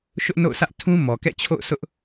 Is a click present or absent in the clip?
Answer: absent